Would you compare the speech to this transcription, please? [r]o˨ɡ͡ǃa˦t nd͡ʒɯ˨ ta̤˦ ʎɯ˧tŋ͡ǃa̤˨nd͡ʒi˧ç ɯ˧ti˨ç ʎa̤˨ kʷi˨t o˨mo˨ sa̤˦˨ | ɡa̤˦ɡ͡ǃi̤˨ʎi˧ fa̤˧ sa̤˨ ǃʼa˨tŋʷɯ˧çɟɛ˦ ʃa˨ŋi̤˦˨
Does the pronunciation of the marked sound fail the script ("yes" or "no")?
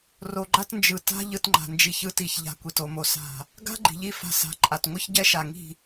no